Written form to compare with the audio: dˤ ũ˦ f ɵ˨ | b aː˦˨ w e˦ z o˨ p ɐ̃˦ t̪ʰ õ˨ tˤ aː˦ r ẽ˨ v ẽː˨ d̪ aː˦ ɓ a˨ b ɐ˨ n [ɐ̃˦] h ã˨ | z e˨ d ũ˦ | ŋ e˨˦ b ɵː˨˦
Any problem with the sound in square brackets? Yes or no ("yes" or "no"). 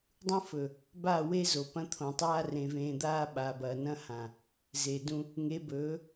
no